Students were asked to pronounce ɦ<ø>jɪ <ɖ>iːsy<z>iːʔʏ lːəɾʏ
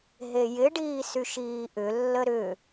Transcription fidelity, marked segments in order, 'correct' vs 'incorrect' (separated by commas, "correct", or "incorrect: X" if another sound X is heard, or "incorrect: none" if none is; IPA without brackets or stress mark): incorrect: e, correct, incorrect: ʃ